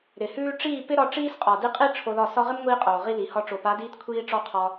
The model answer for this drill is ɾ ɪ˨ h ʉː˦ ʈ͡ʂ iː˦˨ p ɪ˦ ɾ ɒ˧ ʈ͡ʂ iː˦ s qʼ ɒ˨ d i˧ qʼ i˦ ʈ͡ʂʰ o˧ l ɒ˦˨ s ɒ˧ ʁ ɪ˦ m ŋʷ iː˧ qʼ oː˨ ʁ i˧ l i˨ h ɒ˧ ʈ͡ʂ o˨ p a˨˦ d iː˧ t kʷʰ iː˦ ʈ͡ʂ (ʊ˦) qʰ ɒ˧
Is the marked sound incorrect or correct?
incorrect